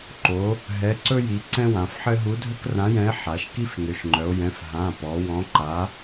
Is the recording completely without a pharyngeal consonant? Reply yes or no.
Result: no